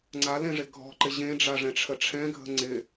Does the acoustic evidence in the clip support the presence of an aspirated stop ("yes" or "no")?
yes